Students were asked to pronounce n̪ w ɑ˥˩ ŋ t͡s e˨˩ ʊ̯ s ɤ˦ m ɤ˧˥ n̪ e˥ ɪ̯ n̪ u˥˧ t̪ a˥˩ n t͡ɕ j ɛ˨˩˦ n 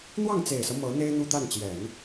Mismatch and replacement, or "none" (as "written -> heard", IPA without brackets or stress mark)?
ʊ̯ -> ɪ̯